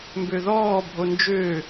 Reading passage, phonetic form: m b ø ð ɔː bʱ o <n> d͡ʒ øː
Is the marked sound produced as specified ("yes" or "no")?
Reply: yes